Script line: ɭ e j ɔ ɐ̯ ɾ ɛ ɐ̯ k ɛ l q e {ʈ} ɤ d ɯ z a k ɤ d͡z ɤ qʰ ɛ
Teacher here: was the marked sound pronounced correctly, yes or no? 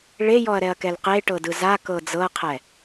yes